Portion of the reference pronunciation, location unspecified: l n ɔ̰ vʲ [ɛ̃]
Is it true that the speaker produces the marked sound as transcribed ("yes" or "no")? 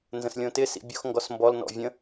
no